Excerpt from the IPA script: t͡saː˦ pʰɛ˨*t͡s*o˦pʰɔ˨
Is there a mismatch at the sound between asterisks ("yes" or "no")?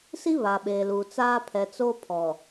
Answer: no